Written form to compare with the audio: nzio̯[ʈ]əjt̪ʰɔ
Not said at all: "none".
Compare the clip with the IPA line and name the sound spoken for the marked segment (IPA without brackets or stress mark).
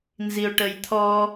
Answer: ʈ